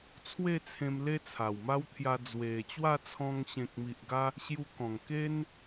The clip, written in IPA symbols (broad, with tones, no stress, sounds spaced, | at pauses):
t͡sʰ w e˥˧ t͡sʰ ẽ˧ m l e˦ t͡sʰ a˨˩ w m a˦ w t̪ʰ j a˧ d͡z w e˨˩ t͡ɕ w a˥˧ t͡sʰ ɔ̃˧ ŋ ɕ ẽ˨ k̚ m i˨ ʔ ɡ a˧ | ɕ j u˧ k ɔ̃˨˩ ŋ k e˦ n